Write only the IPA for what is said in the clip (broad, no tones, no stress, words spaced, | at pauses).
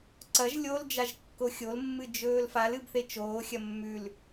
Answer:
ǀɐʒ lʲol d͡ʒaʒkːoxʲolmːɨ d͡ʒɵːlfal ɨbθet͡ʃoːxʲɐ mːʉl